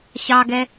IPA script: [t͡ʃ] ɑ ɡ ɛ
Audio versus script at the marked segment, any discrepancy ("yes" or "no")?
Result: yes